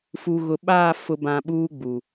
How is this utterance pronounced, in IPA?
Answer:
f u˨ ɣ ʊ˨ ɓ aː˦˨ f ʊ˨ b ã˨ ɓ uː˦ ɡ͡b u˨

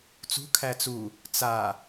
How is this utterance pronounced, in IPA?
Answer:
t͡s ṳ kʰ æ t͡s u | t͡s a

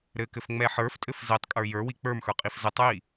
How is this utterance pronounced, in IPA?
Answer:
ɾ ɘ k ɘ f ŋ͡m ɛ ħ ə˞ f tʼ ɘ f z e tˤ kʼ ə˞ j ə˞ w i k͡p ə˞ m x ə˞ qʼ i f z ɘ tˤ j i

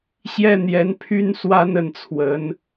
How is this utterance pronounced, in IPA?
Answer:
ɕ j ɛ˥ n̪ j ɛ˧˥ n pʰ y˥ n s w a˥ n ə˥˩ n t͡sʰ w ə˧˥ n

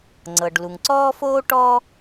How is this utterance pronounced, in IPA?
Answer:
ŋ͡ǀ ɤ˩ ɖ l u˩ ŋ ǀ ɔː˥ f oː˥ ʈ ɔ˥

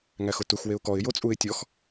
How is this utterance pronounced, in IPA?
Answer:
ŋ æ x ʊ t u x w e ʊ̯ k ɔ ɪ̯ j o t͡sʼ u ɪ̯ tʲ ɔ x

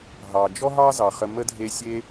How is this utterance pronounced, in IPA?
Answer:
ɦ ɑ˩ d͡ʒ ɔ˦ ɦ ɑ˦ z ɑ˩ χ ə˨ m ə˥ dʱ e˦ sʲ e˥

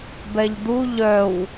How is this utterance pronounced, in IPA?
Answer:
b ɛ ʎ d̪ u ʎ œ w

